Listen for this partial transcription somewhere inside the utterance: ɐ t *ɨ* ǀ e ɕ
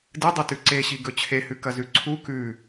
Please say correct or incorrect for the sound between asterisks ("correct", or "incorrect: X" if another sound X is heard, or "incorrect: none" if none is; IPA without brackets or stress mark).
incorrect: ʉ